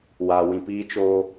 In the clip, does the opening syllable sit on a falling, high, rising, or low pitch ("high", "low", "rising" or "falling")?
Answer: low